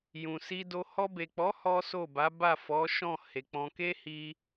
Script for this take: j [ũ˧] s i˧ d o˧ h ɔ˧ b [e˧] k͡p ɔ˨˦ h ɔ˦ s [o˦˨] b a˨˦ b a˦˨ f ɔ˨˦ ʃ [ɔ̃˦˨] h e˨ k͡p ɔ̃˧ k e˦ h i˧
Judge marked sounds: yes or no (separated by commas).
no, no, yes, yes